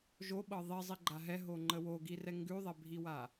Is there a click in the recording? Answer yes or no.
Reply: yes